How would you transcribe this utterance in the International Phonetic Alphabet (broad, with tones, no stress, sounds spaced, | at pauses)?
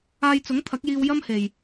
aː˧ j t͡s ʊ˨˥ ŋ t̪ʰ ɐ˨˥ k̚ j iː˧ w j ɐ˥ m h e˨ j